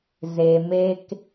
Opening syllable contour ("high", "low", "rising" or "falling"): low